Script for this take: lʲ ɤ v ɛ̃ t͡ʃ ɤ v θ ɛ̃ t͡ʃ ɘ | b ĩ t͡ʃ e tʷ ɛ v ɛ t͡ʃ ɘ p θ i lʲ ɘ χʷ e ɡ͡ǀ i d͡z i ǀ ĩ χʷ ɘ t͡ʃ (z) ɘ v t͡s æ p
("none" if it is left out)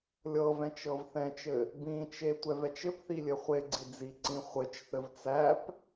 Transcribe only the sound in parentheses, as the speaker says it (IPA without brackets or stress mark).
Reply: θ